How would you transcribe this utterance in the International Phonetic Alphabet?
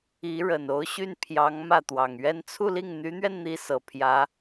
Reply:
i˧˥ɻə˨˩no˧˥ʊ̯ɕy˥˩n pʰjɑ˧˥ŋ mä˥˩t̪wɑ˨˩ŋɥɛ˥n t͡sʰu˥˧li˥˩ŋ n̪y˧˥n̪ɥɛ˧nn̪i˧˥ sɤ˨˩ pʰjä˧˥

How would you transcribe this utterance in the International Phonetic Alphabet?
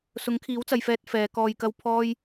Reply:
sʊ˨˥ŋkʰiː˨˥wt͡sɐ˨jfɛː˧t̚ fɛː˨˧kɔː˧jkɐ˥w pʰɔː˥j

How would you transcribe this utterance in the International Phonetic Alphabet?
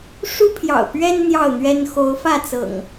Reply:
ʂu˦pʰjɑ̰˨˩ʊ̯ pɥɛ˦n n̪jɑ˥˨ʊ̯n̪ɥɛ˦n xo˨˦ʊ̯fä˥˨ t͡sɤ̰˨˩ŋ

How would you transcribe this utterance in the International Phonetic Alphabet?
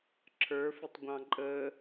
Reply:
ǁʰə˞fɪtˤɡʷɑ̃ ǃʼə

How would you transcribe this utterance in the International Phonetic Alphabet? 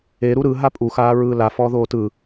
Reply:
e ɾuɾɯ ɦapʼu xaːɹɯːla fɔːðoːtɯ

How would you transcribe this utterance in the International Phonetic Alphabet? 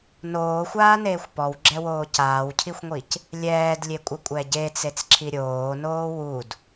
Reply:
noːxʷaːneːxʷ pɔwɡ͡ǁɛwoː caːwcʰixʷŋʷic | lʲɛːdlʲekʷʼəkʷʼɛ ɟet͡set͡sǁʰi ɾʲoːnoː wud

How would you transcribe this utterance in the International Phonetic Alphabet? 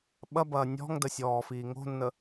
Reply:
ɓɐbɐː nʲɔ̤ŋdə sʲɔːfiːŋo̤nːə

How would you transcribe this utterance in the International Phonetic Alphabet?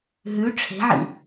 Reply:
ɦʉ ʈ͡ʂʰe̤ʕḭ

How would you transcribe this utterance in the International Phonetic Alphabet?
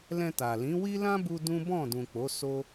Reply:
lɛ̃˧ta˨ lĩ˨˦wi˦ lã˦bu˧ dũ˦bɔ̃˦˨dũ˨k͡po˨˦ so˦

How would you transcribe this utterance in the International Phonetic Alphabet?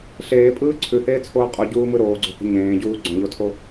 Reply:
ɬeːpʼɯː ǀʰʉheːt͡sʰoː qʼuɟuːmɯ ɾoːɡ͡ǀo̤hə̤ ɲẽːɟuː ɡ͡ǀõʎotʰo

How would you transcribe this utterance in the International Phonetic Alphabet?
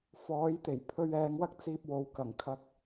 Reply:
fɔː˨˥jt̪e˨˩j pʰɵ˧ɥɛː˨˧ŋwɐ˥k̚t͡siː˧p̚ wo˨wkɐ˨˩ŋkʰɐ˧k̚

